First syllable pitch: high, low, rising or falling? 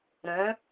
rising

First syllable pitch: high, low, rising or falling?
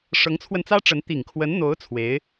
rising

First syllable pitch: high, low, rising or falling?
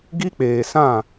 high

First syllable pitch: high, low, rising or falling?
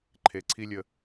low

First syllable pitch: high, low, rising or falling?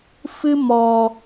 high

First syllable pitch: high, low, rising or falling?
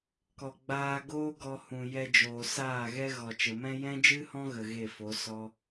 low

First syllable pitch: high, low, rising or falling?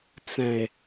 low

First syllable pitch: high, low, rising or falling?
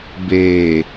low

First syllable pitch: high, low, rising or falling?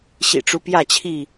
low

